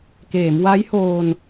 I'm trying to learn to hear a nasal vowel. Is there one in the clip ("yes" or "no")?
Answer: no